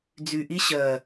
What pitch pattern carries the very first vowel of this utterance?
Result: low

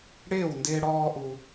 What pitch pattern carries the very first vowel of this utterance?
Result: falling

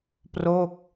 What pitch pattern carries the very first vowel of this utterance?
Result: falling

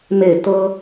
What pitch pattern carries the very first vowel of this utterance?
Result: falling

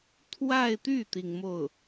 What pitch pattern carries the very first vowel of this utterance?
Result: falling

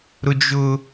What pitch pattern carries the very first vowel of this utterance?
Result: high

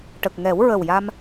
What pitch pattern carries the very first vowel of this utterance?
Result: low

